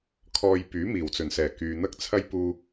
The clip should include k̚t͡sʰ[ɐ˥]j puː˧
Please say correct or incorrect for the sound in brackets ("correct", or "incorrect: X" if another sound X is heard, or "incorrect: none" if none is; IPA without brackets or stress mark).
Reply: correct